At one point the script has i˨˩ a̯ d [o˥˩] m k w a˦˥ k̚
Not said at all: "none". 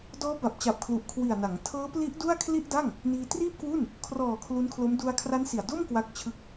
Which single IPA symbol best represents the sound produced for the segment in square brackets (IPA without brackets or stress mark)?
o˥˩